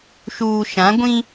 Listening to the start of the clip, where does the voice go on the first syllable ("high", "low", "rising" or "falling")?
low